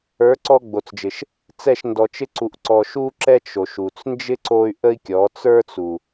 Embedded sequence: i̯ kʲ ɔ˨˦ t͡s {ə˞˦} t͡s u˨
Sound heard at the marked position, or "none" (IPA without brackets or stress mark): ə˞˦